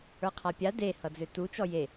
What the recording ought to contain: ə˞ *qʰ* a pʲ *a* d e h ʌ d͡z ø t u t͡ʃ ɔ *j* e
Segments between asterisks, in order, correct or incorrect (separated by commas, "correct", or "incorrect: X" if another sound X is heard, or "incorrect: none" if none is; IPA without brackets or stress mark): correct, correct, correct